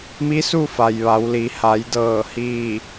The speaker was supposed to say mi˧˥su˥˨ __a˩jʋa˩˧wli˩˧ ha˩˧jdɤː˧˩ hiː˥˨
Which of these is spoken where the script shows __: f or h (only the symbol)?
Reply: f